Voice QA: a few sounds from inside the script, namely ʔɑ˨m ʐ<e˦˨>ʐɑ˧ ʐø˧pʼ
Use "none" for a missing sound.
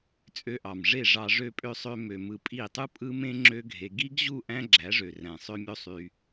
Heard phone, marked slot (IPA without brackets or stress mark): e˦˨